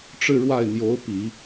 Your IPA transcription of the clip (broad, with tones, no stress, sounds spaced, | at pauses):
ʈ͡ʂ ɻ̩˥˧ ɻ w a˥˩ ɪ̯ n̪ j o˧˥ ʊ̯ p i˨˩˦